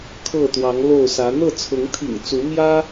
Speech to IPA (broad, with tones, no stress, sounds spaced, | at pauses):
kʰ ɤ˥˨ t̪ w ɑ˨˦ ŋ l o˥˨ ʊ̯ s ä˨˦ n̪ ɤ˥˨ t͡sʰ ʊ˨˦ ŋ t̪ʰ ḭ˨˩ ŋ t͡s u˨˦ m j ä˦